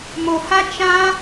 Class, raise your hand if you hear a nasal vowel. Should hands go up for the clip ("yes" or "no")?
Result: yes